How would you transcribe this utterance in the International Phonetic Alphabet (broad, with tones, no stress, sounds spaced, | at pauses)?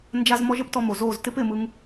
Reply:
n d͡ʒ a˧ z m ɔ˧ ʒ ə˦ p t ɔ˧ m o˨ z o˦˨ z t ɪ˦ p ɪ˦˨ m ɯ˧ ŋ